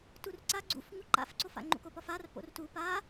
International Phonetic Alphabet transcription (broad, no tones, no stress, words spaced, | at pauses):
turǀa ɡ͡ǀṵf ŋuǃa̰fǀofa̰ ŋ͡ǃṵkopɒfar po̰rtu pa